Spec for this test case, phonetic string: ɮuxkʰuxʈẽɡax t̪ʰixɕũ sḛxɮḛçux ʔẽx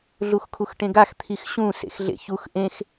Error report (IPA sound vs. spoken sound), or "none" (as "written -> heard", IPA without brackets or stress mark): none